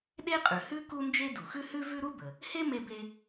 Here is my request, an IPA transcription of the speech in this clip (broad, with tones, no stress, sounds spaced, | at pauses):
ɗ e˥ qʼ ʉ˩ h ʉ˥ k u˥ n d͡ʒ e˥ d u˩ x ʉ˥ h ʉ˥ v ʉ˥ ɾ u˥ b ə˩ | h e˥ m e˥ b e˥